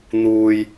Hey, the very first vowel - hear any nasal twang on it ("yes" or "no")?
no